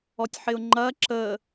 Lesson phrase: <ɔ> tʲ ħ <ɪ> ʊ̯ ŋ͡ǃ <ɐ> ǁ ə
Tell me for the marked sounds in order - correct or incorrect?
correct, correct, correct

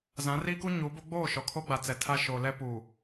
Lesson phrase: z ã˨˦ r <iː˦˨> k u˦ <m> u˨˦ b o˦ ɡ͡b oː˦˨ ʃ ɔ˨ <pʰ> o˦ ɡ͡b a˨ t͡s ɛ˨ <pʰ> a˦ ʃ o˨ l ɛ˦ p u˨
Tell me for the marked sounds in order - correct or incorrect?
incorrect: iː˦, incorrect: ɲ, incorrect: kʰ, incorrect: tʰ

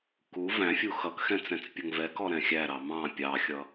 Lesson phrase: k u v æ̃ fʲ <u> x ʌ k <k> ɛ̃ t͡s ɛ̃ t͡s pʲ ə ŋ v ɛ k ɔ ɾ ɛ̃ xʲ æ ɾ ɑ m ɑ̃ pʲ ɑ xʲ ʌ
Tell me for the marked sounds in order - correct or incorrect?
correct, incorrect: x

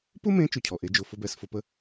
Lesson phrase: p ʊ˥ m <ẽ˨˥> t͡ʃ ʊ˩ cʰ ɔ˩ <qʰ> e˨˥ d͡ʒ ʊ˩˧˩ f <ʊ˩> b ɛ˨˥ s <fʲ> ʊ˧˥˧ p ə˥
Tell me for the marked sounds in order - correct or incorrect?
correct, incorrect: ʔ, incorrect: ʊ˥, incorrect: f

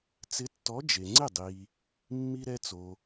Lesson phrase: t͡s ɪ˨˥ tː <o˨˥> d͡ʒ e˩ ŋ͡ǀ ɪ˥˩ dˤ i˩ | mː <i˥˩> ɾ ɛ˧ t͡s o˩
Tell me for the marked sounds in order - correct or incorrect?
incorrect: ɔ˨˥, incorrect: i˧

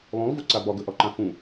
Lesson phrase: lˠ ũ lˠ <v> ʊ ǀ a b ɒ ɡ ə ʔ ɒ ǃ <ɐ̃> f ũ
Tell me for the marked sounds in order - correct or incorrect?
correct, incorrect: ã

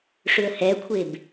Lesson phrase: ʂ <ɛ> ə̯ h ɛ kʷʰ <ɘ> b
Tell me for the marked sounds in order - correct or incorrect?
incorrect: ʏ, incorrect: e

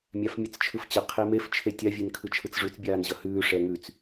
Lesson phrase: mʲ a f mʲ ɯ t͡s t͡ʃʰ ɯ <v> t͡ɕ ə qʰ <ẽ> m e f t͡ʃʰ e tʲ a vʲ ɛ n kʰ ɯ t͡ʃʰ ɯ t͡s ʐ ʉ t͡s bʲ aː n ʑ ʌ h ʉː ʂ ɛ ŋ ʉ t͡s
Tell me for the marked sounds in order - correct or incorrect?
incorrect: f, incorrect: e

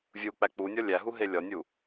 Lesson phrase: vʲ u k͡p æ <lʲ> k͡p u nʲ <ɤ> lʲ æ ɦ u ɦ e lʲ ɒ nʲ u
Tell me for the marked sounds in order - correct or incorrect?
incorrect: none, incorrect: ɔ

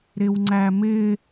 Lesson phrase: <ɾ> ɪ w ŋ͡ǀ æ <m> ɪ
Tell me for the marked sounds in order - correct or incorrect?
correct, correct

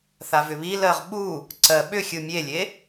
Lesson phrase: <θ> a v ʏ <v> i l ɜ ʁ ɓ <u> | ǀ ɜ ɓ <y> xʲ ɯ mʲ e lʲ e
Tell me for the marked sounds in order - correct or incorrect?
correct, incorrect: β, correct, incorrect: ʏ

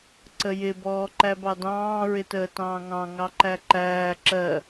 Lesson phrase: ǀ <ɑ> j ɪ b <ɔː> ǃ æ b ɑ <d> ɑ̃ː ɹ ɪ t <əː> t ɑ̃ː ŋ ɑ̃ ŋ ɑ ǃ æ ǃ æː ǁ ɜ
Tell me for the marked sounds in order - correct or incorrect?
incorrect: ə, correct, correct, correct

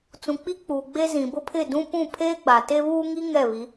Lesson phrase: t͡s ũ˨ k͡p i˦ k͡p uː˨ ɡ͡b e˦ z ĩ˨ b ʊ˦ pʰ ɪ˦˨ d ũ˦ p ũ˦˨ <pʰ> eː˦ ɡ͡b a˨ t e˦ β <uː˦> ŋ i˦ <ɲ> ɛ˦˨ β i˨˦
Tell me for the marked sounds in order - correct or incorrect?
correct, correct, incorrect: ŋ

